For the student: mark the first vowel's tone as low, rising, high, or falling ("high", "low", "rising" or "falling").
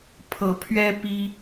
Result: rising